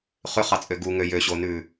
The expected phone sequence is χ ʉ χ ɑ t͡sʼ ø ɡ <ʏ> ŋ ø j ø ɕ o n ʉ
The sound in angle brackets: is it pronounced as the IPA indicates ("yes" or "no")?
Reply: no